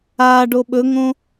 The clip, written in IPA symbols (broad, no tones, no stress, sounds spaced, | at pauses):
a ɖ o ɓ ɵ ŋ õ